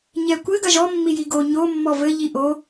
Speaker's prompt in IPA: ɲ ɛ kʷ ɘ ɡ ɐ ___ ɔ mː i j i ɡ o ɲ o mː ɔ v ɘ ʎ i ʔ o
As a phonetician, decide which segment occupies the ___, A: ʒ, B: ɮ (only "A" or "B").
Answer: A